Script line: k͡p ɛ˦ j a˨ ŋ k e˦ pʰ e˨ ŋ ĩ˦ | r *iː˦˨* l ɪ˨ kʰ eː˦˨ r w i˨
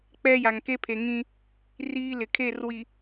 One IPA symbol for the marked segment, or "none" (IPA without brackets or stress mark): iː˦